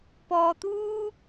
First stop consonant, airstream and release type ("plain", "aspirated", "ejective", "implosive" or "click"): plain